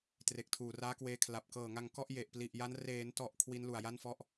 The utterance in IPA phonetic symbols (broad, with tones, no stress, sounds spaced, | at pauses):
t r e˨˩ k̚ tʰ uː˨˩ r aː˦˥ k w eː˧ kʰ l a˨˩ p̚ k ɤː˨˩ ŋ a˧ ŋ k ɔ˥˩ ʔ j e˨˩ ʔ p l i˨˩ ʔ j a˦˥ n r eː˩˦ n t ɔ˨˩ ʔ kʰ w i˦˥ n l u˨˩ a̯ j a˥˩ n f ɔ˥˩ ʔ